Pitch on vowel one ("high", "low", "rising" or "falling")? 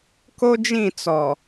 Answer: high